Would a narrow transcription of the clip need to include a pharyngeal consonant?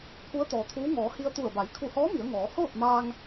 no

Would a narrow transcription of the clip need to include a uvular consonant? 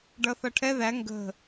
no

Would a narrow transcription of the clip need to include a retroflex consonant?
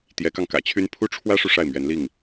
yes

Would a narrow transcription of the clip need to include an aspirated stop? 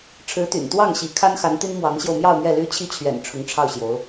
yes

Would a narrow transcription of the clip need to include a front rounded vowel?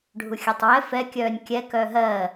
yes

